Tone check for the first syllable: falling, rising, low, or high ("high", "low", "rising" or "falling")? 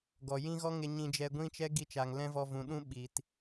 low